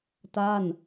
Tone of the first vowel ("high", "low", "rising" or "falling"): falling